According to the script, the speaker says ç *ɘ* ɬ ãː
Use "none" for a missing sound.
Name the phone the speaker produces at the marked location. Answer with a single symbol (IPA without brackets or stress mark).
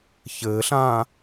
ɘː